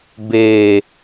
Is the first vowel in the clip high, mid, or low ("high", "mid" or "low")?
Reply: mid